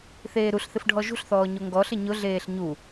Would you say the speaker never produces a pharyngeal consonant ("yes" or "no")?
yes